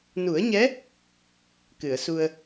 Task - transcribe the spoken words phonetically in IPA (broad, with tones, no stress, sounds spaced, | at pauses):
n u˨˩˦ ə̯ ɲ ɛ˧˥ | k ɨ˨˩˨ ə̯ s u˧ ə̯